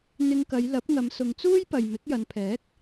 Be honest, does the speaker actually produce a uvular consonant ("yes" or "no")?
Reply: no